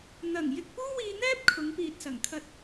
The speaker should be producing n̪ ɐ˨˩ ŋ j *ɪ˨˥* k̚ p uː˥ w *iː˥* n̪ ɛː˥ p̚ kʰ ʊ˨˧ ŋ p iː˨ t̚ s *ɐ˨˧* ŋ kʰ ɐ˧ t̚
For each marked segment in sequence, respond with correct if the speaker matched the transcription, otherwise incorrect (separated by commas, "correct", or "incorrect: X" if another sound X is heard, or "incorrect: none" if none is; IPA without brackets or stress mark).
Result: incorrect: ɪ˧, incorrect: iː˧, incorrect: ɐ˨˩